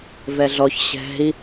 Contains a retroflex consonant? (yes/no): no